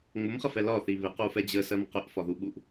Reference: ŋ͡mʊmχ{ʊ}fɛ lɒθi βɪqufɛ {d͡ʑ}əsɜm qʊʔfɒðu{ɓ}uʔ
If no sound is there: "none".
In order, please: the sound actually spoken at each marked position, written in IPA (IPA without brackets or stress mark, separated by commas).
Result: ə, d͡ʑ, ɓ